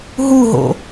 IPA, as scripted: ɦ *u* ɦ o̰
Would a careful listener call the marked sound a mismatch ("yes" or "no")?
no